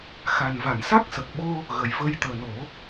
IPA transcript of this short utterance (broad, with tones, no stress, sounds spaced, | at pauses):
x a˨˩ n v a˨˩˨ n s a˦˥ k̚ s ə˨˩ k̚ ɓ o˧ | ɣ ə˨˩ j v ə˧ j t̪ əː˨˩ n o˨˩˦